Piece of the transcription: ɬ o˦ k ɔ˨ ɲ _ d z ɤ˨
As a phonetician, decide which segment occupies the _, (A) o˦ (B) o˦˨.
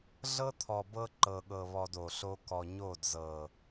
B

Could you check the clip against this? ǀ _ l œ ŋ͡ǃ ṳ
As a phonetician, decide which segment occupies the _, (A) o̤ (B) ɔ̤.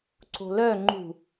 A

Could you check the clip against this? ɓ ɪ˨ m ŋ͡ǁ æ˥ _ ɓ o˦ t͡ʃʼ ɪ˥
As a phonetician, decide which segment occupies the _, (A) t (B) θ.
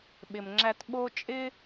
A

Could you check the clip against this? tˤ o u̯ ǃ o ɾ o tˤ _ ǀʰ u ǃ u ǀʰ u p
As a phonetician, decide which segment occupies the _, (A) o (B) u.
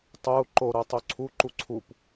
A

